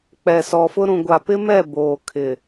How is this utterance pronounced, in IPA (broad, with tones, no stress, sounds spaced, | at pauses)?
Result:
k͡p ɛ˨ s ɔ˨ f ʊ˦ ɾ ũ˨ ɡʷ a˨ p ɪ˦ m ɛ˦˨ b oː˨ kʰ ɪ˨